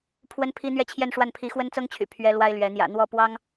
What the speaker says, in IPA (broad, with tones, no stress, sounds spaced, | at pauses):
pʰ w ə˥ n pʰ i˥ n̪ ɥ ɛ˥ t͡ɕʰ j ɛ˥˧ n ʂ w a˥˩ n pʰ i˧˥ x w ə˥ n t͡s ɤ˥ ŋ t͡ɕʰ y̰˨˩ pʰ ɥ ɛ˥ l w a˥ ɪ̯ l ɥ ɛ˧˥ n̪ j ä̰˨˩ n̪ w ɔ˥˩ p w ɑ˥ ŋ